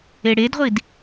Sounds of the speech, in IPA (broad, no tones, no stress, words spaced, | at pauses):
eɽedʁʷid